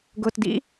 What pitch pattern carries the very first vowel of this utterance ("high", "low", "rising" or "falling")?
low